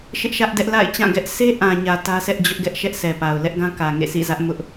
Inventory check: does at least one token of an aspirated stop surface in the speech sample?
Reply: no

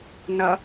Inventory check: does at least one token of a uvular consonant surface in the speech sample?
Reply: no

